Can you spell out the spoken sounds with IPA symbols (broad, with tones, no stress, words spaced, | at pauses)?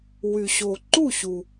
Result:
wy˩ɕo˩ǃu˥˩ɕu˩